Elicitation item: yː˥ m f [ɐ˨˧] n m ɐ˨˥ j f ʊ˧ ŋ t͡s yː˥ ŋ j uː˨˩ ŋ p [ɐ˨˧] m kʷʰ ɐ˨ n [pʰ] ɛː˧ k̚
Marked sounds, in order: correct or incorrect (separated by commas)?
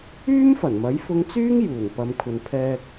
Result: incorrect, correct, correct